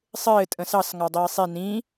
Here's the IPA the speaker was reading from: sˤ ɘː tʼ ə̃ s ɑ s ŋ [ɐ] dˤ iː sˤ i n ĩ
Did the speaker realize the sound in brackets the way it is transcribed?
no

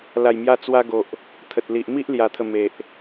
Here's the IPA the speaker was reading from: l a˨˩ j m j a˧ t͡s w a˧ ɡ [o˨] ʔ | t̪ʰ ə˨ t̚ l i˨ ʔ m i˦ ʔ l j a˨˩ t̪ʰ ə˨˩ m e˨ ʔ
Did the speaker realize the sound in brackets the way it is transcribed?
yes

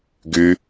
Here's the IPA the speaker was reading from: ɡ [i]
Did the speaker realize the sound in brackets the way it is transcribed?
no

